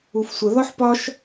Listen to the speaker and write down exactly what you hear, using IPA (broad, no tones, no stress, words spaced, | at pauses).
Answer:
ufsʷə ðɒħpɒʃ